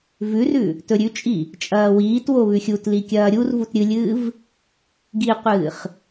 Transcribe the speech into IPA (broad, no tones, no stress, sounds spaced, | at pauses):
v ʉ r ʉ | t ɵ ɾʲ ʉ t͡ʃʼ i | t͡ʃʼ ɐː w iː t w o β ʉ xʲ u t l i kʲ ɐː ɾʲ u r v u t ɾʲ ɨ lʲ ɨː v | ɡ i qʷ ɨː χ